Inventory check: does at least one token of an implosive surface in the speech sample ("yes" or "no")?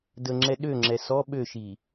yes